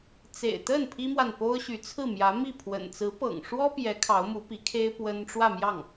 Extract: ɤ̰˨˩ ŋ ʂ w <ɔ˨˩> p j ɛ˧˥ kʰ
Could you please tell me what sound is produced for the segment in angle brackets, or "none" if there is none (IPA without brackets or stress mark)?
ɔ˥